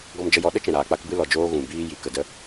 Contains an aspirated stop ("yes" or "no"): no